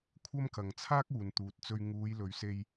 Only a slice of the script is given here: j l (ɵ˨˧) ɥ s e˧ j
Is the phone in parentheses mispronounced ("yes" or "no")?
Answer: no